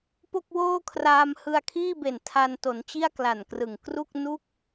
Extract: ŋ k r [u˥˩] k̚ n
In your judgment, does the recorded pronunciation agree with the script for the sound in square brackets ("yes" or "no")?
yes